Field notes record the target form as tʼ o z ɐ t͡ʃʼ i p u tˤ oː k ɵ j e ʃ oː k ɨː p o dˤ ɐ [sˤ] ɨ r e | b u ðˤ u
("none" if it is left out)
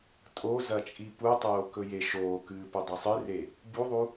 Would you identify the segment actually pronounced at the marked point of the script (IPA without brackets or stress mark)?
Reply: sˤ